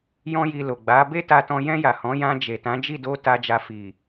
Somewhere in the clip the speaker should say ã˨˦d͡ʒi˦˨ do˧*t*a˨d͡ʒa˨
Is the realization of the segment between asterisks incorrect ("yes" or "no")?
no